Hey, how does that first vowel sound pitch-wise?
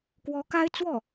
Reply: rising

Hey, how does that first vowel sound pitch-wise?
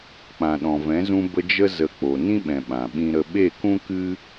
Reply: low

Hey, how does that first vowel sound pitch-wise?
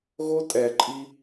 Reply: high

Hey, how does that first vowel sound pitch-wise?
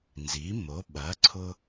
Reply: rising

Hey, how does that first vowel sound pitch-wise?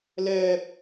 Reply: high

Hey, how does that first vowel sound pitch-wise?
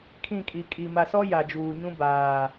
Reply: falling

